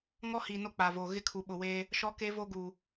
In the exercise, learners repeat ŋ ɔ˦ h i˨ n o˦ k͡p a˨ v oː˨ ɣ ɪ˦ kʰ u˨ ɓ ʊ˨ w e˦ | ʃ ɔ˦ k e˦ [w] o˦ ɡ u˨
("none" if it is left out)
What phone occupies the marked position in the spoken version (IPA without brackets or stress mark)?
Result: v